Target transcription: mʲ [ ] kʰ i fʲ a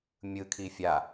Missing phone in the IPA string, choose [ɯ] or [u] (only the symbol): ɯ